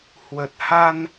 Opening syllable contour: low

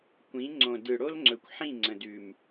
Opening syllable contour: rising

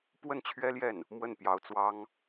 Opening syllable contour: falling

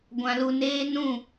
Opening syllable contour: low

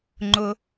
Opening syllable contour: high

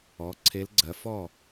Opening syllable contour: rising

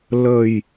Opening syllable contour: low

